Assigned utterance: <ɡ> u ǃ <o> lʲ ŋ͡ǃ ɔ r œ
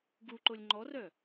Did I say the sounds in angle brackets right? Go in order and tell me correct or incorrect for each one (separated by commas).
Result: correct, correct